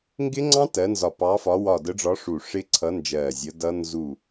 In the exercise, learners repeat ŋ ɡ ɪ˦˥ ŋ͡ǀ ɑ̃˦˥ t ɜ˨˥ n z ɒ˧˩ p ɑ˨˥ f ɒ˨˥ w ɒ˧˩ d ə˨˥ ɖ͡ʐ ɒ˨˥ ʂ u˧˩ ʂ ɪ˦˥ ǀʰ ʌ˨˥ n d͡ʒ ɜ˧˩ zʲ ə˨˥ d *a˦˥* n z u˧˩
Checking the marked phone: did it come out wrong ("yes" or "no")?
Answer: yes